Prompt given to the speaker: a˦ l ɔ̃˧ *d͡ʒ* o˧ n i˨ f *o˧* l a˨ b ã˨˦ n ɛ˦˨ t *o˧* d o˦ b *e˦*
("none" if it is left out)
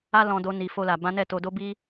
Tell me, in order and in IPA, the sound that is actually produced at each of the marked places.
d, o˧, o˧, i˦

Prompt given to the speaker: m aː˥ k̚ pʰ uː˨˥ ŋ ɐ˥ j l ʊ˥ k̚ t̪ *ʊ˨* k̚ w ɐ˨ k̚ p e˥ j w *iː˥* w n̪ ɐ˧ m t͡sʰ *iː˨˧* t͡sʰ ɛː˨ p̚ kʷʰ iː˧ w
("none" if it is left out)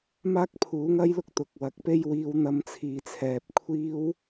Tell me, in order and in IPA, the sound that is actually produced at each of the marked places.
ʊ˨, iː˧, iː˨

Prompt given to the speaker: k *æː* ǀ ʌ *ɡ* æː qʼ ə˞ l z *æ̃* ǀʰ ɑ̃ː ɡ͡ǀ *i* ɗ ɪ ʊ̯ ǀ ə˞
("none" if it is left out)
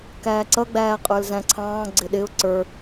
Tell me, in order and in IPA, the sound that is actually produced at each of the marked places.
æː, ɡ͡b, æ̃, ɪ

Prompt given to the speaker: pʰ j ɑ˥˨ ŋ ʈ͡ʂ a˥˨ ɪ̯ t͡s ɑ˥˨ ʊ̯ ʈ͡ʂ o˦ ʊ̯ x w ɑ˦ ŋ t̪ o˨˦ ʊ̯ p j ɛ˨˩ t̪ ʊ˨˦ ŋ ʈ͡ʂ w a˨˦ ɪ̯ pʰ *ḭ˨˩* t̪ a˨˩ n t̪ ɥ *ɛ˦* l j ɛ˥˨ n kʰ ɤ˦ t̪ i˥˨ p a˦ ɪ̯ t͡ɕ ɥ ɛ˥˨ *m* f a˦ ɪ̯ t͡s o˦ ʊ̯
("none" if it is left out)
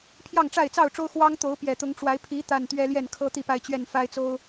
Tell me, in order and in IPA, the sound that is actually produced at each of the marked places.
i˨˦, ɛ˦, n

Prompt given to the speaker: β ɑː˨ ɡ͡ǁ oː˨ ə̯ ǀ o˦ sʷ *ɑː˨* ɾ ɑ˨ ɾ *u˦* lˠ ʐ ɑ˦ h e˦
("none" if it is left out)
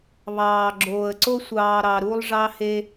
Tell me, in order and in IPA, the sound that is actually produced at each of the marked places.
ɑː˨, u˦

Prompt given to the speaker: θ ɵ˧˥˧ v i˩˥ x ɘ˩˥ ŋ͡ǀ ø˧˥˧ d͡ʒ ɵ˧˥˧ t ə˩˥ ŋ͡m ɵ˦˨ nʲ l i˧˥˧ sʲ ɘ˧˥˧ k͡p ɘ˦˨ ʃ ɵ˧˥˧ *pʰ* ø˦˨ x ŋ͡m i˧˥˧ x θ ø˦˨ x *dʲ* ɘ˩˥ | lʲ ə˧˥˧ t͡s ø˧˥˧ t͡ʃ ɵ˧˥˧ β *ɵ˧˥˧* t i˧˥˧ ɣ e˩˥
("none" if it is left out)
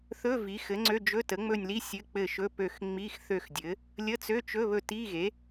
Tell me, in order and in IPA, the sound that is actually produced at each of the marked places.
p, dʲ, ɵ˦˨

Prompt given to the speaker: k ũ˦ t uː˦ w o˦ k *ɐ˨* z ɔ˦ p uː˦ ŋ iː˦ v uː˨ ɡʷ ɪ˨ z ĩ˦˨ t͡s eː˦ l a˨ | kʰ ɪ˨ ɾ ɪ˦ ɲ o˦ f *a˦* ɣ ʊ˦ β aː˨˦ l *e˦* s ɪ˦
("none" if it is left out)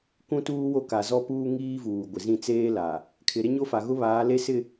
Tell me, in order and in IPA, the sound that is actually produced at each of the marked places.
a˨, a˨, e˦

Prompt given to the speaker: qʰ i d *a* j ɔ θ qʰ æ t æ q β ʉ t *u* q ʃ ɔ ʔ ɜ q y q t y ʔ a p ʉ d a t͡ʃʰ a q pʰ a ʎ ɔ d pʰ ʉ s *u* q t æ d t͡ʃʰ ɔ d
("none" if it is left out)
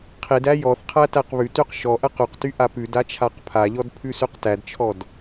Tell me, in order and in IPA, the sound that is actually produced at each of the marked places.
æ, y, ʉ

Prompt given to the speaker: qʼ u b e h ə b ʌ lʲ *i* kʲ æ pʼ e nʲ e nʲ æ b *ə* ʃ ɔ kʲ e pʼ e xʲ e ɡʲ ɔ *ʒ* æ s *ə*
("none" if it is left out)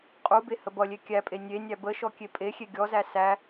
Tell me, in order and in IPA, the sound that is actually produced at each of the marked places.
e, ə, z, æ

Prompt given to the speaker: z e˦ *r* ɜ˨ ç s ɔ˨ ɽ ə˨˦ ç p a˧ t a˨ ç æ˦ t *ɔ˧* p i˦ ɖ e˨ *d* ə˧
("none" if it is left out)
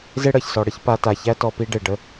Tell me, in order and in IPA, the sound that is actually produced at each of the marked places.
ɽ, ɔ˧, ɖ

